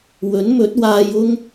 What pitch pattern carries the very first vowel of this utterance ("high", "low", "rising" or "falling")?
rising